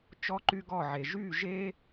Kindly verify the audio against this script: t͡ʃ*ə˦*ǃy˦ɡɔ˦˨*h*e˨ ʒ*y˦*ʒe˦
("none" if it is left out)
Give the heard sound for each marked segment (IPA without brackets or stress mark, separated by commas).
ɔ˦, ʕ, y˦˨